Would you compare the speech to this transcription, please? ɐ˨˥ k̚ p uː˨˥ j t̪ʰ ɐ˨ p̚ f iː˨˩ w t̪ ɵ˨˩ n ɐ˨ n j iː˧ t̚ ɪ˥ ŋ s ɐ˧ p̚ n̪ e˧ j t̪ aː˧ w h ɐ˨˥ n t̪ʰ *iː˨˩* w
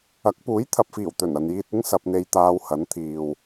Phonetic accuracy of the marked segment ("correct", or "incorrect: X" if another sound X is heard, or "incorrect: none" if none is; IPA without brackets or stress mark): incorrect: iː˨